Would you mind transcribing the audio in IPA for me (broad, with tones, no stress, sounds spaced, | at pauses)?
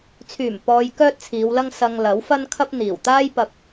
t͡sʰ yː˨˩ m p ɔː˧ j k œː˥ t̚ t͡sʰ iː˨˧ w l ɐ˥ ŋ s ɐ˧ ŋ l ɐ˨˥ w f ɐ˥ n kʰ ɐ˥ p̚ n̪ iː˨˩ w t̪ aː˥ j p ɐ˧ p̚